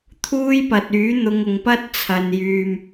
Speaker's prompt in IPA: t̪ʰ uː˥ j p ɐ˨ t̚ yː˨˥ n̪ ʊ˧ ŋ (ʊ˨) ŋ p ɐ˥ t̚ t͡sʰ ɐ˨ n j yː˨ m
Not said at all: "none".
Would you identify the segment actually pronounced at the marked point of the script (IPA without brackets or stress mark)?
ʊ˨